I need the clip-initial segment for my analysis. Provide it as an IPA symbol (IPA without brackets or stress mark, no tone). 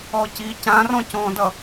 ɔ